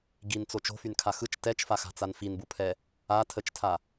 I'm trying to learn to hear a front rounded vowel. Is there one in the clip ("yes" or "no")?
yes